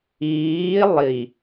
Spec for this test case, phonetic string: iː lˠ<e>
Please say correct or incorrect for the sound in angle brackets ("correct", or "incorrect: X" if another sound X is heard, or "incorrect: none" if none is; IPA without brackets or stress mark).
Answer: incorrect: i